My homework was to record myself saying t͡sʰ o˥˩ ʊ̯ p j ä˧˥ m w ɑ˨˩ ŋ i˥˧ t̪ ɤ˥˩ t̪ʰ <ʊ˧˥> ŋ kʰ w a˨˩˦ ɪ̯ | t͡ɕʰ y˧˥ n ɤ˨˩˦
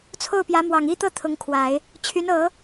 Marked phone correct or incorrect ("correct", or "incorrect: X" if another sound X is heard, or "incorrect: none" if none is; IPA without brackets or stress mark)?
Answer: correct